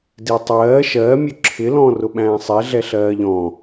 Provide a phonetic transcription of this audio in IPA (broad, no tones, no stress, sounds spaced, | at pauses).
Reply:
d i tˤ ɜː ʃ ɜ mʲ ʊ ǁʰ ɪ l ɔ̃ː r ʊ ɓ æ̃ː sˤ ɛ ɮ ɛ ɬ ɜː ʎ ɔ̃